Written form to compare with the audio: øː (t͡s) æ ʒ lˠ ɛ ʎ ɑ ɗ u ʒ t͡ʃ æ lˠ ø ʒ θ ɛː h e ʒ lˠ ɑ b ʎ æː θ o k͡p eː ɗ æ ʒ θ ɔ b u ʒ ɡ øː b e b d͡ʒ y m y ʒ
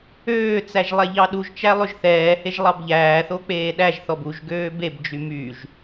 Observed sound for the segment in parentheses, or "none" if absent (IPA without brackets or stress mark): t͡s